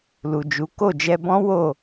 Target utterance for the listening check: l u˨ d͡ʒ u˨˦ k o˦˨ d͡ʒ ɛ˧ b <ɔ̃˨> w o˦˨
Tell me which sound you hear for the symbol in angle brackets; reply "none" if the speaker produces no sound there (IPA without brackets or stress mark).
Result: ɔ̃˦